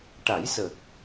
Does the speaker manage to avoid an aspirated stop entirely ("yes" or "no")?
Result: yes